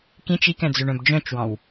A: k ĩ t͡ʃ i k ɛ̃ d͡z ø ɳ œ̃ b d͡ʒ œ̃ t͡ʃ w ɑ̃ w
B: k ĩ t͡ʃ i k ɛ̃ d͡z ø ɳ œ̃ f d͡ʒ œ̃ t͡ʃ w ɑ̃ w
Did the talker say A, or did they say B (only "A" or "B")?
A